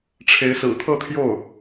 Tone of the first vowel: rising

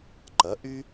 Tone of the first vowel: rising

